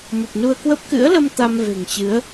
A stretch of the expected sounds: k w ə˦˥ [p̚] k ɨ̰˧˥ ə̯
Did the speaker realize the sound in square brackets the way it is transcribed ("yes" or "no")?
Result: yes